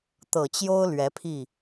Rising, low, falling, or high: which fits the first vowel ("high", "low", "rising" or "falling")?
low